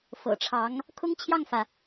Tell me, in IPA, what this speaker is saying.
fɤ̰˨˩ʈ͡ʂʰɑ˧˥ŋ | kʰʊ˥ŋt͡ɕʰjɑ˥˩ŋfä˩

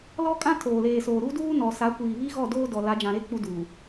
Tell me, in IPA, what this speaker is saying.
lɔ˦kʼã˦ tʰoː˨leː˨soː˨ ɾu˦duː˦ nɔ˨ sa˨˦kʷiː˨βi˦ ɣɔ˦˨doː˦ dɔ˨ la˨˦d͡ʒã˨ɾe˦ k͡pu˦duː˨

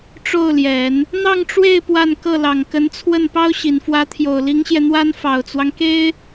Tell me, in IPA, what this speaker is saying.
ʈ͡ʂo˥˩ʊ̯ljɛ˨˩˦n | n̪ɑ˥˧ŋʈ͡ʂwe˥˧ɪ̯ pwa˥˧n kɤ˥˩lɑ˨˩ŋkə˧˥nt͡sʰwə˥˩n pɑ˥ʊ̯ɕi˨˩nfwä˧˥t̪ʰjo˨˩ʊ̯ li˧˥ŋɕjɛ˧n̪wa˥n fɑ˨˩ʊ̯t͡swɑ˦ŋke˥ɪ̯

